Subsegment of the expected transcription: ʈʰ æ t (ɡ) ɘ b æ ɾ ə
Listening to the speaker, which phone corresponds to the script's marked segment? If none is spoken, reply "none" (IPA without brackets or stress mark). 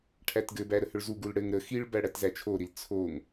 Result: ɡ